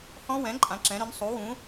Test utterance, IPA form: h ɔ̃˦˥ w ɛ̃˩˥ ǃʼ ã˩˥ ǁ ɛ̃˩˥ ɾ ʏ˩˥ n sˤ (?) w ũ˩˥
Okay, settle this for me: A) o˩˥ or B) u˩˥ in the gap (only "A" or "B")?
B